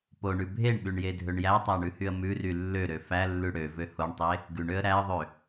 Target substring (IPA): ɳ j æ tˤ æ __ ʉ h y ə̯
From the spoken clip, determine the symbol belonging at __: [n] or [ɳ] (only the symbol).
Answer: ɳ